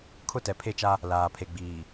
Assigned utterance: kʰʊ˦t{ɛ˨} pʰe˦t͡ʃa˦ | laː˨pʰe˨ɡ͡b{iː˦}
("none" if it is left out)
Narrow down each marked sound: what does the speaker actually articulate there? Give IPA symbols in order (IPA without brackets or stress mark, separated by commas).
ɛ˨, iː˨